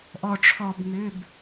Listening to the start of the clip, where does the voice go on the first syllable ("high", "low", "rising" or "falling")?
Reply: low